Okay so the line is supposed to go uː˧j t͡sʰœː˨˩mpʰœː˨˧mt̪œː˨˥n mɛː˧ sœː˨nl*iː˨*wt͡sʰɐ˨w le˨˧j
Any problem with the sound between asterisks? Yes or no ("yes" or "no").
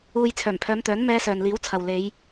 yes